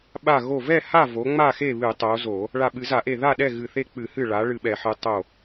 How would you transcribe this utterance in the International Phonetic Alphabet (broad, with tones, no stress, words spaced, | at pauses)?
ɓa˧˩ ɣo˧˩vɛ˥˨ ha˥˨vo˩˧ ŋ͡ma˥˨ xe˥˨βɨ˧˩˧tˤo˩˧ zo˧˩˧ | ɭa˧˩ɓɨ˧˩˧za˧˩˧ʔe˧˩ ða˥˨ɗɛ˥˨ ɣɨ˧˩θe˥˨ k͡pɨ˧˩˧hɨ˧˩ ɭa˩˧ ɭɨ˧˩ɓɛ˧˩˧ħɨ˩˧ tˤo˧˩